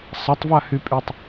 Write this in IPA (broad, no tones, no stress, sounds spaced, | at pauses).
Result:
sˤ ɐ tˤ v a h y pʼ y tˤ